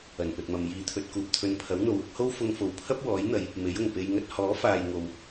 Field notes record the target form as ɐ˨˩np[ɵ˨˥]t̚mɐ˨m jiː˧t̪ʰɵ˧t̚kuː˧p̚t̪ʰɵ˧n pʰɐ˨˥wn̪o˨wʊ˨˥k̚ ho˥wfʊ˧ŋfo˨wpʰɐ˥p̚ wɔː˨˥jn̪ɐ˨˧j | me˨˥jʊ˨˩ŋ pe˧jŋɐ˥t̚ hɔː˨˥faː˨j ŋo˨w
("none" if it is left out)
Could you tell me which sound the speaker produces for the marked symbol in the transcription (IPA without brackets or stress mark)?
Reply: ɵ˨